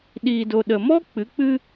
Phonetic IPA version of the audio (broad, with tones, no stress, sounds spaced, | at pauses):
ɗ iː˨ d o˨ ɗ ə˨ m ɔ˦ k͡p ɨ˨˦ k͡p ɨ˦